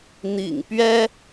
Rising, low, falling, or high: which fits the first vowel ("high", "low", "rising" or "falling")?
low